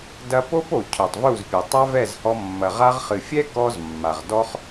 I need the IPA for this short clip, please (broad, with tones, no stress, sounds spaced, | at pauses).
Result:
d ɐ˧ p o˦ p o˨ cʰ o˨ tˤ v u˦˨ z pʲ ɘ˨ tˤ a˦ v ɛ˦˨ z h ɔ˧ mː ɐ˨ ʁ a˧ ʁ χ ɨ˨ fʲ ɛ˦ k ɔ˧ z mː a˨ ʁ d ɔ˦ χ